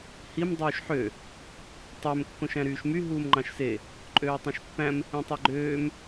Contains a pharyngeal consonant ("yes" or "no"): yes